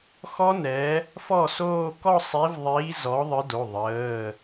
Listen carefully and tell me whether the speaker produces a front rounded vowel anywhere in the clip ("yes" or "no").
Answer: no